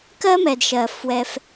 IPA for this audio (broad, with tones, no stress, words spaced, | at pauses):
kɜ˦mɛ˨dʃɜ˨ fwɛ˧f